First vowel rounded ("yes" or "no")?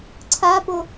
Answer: no